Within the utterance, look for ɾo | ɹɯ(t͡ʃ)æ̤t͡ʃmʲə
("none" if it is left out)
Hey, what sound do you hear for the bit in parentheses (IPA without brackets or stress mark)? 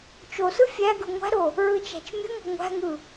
t͡ʃ